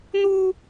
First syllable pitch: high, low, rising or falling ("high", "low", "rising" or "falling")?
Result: high